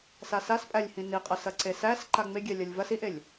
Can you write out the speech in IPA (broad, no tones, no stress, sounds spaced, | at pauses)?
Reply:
s a s a s pʼ æ lʲ h ĩ n i qʼ ɐ s ɐ ǀ e s æ s ǃ a ŋ͡m e ɡʲ ɛ lʲ ɐ lʲ v ɐ s i ʔ e lʲ